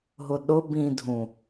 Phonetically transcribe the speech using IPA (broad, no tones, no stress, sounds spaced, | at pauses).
ɦ ʊ ɗ ʊ b ĩ dʱ ũ